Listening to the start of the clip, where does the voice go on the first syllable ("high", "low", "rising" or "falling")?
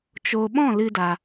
low